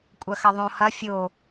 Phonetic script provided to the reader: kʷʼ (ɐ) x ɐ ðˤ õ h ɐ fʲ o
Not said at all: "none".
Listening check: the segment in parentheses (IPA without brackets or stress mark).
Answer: ɐ